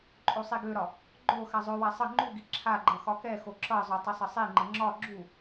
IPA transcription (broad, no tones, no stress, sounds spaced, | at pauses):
ǃʼ o sˤ i ɡ ø ɾ ɒ | ɡ͡ǃ o x a zˤ ø w a sˤ ə ŋ͡ǃ u ɡ i ǁʰ a ɡ͡ǃ ʌ x ɒ k ɛ x o ǁ ʌ zˤ ø tˤ ɪ sˤ ə sˤ i ŋ͡ǃ ə ŋ͡ǁ ɒ ɡ͡ǁ u